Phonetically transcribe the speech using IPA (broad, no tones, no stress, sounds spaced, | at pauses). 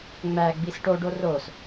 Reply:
ŋ͡m æ ɡ͡b i s ʈ o ɖ o r o s